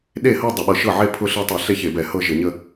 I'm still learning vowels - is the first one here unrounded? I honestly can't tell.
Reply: yes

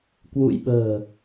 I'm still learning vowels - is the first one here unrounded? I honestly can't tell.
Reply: no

